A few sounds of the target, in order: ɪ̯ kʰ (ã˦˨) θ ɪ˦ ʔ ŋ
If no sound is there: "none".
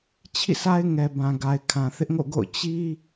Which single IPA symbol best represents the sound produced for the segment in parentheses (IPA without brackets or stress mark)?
ã˨